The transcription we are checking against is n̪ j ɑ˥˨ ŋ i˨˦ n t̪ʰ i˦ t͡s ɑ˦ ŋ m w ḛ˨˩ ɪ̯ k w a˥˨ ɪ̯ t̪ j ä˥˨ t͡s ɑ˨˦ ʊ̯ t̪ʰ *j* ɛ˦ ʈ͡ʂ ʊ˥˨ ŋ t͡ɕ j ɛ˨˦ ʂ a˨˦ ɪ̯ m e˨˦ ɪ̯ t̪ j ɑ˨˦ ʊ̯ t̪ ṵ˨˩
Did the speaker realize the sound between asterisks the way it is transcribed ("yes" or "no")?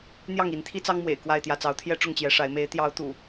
yes